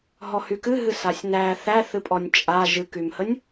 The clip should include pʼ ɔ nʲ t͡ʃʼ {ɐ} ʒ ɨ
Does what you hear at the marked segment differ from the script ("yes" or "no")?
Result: yes